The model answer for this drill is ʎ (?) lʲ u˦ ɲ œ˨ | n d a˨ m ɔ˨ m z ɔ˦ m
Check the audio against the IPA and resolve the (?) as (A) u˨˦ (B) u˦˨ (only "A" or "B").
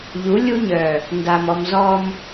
A